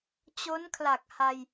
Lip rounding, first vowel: rounded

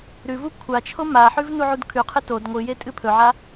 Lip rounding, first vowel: rounded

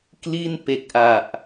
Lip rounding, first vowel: unrounded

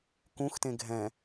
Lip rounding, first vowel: rounded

